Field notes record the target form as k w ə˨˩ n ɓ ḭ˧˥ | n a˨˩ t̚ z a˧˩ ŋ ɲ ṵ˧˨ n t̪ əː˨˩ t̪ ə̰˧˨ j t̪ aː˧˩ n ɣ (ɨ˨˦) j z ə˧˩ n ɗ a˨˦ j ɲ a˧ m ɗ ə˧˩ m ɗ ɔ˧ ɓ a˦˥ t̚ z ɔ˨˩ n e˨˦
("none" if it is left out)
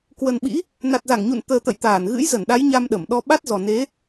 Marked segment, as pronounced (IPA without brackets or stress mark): ɨ̰˧˥